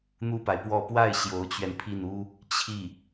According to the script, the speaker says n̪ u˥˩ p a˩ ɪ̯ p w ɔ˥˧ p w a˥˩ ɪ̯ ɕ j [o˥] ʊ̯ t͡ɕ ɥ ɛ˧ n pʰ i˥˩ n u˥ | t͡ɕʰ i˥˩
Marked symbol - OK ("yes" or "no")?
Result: no